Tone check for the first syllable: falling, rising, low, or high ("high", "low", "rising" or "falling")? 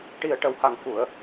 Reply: low